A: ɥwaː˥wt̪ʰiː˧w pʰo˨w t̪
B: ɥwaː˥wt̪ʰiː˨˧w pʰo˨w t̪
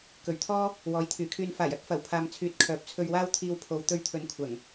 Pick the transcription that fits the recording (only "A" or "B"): A